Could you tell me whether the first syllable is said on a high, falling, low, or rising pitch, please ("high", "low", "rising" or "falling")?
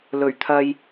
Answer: low